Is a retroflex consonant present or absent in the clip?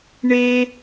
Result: present